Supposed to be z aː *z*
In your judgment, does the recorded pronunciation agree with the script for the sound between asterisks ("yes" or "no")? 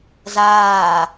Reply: no